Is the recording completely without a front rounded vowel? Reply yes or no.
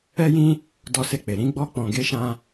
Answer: yes